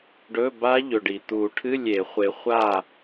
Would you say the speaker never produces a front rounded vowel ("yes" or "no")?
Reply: yes